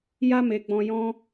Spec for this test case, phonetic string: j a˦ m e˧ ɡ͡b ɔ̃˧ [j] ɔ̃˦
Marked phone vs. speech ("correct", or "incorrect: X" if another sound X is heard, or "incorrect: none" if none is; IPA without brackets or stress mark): correct